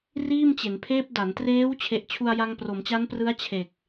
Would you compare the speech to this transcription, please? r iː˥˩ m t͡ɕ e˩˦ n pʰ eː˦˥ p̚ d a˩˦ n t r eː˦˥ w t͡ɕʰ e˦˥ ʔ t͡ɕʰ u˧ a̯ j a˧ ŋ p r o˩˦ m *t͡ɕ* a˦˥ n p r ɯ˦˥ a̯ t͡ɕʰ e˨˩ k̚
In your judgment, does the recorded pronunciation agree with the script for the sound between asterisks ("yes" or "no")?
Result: yes